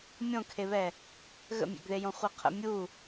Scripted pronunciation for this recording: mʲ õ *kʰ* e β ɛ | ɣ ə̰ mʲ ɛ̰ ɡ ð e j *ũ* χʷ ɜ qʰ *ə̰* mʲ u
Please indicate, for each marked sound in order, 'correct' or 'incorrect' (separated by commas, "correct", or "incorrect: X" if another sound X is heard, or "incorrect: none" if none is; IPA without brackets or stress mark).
correct, incorrect: õ, correct